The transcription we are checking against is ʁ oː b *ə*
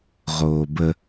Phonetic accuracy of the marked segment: correct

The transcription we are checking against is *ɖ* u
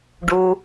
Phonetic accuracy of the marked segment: correct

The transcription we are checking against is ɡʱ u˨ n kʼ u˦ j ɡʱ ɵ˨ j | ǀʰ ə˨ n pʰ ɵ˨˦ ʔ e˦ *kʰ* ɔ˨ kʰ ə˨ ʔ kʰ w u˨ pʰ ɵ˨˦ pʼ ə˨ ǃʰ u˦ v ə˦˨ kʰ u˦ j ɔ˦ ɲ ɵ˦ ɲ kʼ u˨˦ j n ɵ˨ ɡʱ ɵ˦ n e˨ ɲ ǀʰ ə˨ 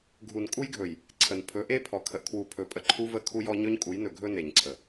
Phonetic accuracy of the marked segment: incorrect: pʰ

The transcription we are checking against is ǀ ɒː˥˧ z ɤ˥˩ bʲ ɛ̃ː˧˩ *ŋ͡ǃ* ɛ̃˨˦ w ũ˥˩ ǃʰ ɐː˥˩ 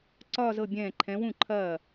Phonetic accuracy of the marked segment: incorrect: ǃʰ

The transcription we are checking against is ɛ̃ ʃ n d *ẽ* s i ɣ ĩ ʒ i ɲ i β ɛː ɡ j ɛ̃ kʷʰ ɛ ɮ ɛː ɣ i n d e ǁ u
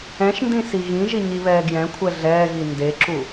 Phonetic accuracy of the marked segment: incorrect: ĩ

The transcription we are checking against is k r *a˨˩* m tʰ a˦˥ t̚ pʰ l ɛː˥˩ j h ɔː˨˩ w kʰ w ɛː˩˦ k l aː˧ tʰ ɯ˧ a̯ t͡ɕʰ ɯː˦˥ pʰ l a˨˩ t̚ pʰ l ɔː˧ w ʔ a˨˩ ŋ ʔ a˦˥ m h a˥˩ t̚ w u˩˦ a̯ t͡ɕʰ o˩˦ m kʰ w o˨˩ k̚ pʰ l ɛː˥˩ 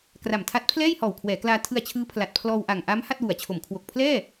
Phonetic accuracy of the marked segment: correct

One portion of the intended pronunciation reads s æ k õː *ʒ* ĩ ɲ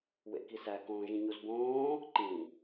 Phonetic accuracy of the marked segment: correct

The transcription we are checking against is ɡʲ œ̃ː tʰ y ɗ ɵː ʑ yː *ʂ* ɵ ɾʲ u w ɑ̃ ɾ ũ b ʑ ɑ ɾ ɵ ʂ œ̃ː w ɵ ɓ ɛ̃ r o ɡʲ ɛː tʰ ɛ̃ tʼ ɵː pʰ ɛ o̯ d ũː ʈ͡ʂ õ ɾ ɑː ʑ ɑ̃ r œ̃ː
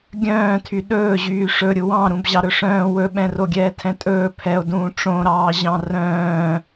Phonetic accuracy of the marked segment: correct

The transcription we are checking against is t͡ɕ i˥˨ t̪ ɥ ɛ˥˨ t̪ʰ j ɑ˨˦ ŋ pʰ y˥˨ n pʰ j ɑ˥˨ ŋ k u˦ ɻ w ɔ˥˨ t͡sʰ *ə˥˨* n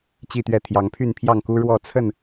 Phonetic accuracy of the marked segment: correct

